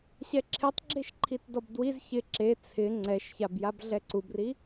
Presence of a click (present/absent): present